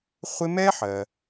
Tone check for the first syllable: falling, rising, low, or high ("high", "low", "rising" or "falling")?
high